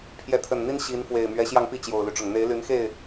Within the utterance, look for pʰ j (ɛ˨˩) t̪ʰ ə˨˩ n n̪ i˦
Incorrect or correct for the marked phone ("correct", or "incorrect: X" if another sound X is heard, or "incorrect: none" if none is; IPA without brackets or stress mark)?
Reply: incorrect: ɛ˨˦